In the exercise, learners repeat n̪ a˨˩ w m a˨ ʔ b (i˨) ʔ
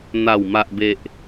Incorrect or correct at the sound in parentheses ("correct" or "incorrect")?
incorrect